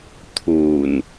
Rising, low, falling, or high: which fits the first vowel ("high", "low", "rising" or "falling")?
low